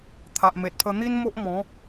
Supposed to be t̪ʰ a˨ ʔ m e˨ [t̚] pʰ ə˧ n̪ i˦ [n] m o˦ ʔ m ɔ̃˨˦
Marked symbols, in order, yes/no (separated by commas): yes, yes